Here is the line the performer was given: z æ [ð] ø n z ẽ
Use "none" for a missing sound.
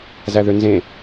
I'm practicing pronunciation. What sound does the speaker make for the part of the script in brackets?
ð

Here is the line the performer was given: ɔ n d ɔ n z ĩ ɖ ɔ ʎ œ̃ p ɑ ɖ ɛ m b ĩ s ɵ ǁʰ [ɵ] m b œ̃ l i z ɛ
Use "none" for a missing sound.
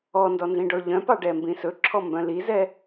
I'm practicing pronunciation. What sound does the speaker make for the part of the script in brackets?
ɔ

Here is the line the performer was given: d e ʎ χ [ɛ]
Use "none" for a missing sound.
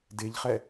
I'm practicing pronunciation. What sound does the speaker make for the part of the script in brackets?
ɛ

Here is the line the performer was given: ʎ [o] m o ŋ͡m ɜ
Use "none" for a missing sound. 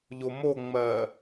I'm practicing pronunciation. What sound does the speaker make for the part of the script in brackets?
o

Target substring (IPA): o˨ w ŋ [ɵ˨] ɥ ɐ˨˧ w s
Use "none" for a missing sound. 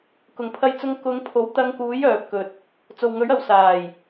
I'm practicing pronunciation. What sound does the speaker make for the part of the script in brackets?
ɵ˨˥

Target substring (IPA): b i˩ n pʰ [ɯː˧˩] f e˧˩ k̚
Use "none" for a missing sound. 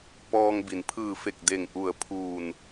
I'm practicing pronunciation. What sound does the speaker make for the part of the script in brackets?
ɯː˧˩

